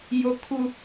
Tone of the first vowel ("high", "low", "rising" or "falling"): high